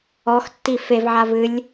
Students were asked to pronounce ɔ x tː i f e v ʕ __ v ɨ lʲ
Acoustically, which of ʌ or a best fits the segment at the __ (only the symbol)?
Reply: a